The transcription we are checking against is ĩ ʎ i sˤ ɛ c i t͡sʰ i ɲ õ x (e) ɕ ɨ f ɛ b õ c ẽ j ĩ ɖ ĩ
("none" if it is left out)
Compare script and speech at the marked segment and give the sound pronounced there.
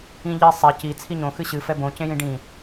ɨ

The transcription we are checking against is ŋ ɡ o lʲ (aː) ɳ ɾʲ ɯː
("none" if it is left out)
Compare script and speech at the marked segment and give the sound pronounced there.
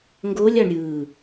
a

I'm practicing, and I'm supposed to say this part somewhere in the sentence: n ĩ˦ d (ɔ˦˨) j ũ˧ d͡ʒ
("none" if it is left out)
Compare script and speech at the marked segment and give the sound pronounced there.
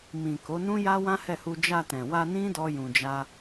ɔ˦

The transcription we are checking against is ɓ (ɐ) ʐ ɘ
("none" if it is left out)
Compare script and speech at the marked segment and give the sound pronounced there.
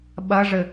ɐ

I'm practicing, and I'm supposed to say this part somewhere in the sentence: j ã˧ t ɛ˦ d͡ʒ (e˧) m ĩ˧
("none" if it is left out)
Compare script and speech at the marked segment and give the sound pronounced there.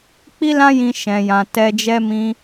ɛ˧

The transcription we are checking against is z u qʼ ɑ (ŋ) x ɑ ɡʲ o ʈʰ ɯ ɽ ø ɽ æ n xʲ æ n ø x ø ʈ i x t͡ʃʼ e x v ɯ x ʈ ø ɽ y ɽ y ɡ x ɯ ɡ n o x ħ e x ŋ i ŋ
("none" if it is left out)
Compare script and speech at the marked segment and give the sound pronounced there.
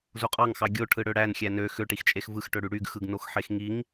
ŋ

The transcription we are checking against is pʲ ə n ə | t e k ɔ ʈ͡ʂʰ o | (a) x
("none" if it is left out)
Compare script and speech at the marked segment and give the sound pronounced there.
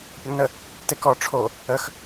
ə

